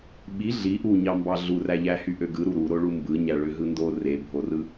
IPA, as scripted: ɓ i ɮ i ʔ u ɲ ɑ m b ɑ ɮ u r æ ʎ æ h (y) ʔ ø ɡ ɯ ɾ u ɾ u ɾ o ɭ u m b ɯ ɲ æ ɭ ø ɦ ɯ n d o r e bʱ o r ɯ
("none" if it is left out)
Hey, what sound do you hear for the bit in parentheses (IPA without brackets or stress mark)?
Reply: y